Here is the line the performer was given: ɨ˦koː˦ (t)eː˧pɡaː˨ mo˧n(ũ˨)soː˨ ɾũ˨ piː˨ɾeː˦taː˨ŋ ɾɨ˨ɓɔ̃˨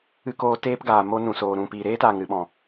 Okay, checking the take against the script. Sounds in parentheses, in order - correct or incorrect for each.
correct, correct

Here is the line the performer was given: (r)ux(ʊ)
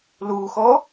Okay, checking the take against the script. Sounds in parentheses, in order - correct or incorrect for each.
incorrect: l, incorrect: ɔ

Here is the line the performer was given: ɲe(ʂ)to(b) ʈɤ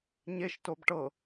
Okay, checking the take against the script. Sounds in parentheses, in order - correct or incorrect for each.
incorrect: ʃ, correct

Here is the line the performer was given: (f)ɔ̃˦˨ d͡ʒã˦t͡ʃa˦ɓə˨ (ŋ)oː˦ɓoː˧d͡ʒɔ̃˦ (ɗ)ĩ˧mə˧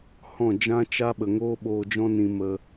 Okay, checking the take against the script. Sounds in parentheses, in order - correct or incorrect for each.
incorrect: h, correct, incorrect: n

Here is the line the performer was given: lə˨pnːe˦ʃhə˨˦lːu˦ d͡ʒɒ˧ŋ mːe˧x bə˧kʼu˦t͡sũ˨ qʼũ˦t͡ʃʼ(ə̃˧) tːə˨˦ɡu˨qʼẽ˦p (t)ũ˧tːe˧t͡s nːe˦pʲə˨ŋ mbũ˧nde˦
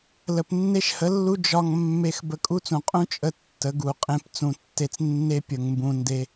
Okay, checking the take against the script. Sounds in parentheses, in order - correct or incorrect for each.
incorrect: ə˧, incorrect: t͡s

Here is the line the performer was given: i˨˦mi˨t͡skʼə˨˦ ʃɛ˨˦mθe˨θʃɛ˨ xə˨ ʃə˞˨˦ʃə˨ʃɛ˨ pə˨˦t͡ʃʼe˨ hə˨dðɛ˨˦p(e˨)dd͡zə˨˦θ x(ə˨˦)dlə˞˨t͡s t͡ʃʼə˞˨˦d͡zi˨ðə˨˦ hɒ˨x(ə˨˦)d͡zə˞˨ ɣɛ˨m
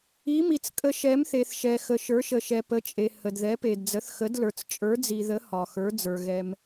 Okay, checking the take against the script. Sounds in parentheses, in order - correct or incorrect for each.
correct, correct, incorrect: ə˞˨˦

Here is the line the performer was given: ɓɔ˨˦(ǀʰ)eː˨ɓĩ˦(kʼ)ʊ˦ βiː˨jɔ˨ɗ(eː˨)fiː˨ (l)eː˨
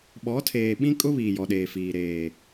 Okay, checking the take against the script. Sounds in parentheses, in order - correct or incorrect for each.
incorrect: tʰ, correct, correct, incorrect: ɾ

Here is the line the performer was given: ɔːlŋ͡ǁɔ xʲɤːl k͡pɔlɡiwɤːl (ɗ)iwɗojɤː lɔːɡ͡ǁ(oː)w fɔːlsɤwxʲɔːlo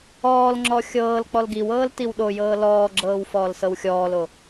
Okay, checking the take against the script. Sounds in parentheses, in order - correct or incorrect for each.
incorrect: t, incorrect: ɤː

